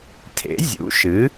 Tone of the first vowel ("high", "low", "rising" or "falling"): rising